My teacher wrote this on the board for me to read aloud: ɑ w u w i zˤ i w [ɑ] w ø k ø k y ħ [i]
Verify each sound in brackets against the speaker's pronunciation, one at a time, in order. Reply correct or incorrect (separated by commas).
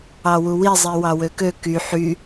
correct, incorrect